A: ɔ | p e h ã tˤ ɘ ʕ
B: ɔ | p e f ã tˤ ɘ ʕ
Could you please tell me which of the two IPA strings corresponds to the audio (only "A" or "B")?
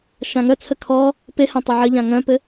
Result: A